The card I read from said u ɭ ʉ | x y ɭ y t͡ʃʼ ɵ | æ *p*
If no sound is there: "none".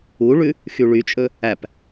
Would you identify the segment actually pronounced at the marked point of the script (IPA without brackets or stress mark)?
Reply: p